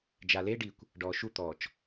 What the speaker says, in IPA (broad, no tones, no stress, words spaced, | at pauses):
d͡ʒaleɖikʷ | ɖɔːʃut̪ɔːt͡ʃ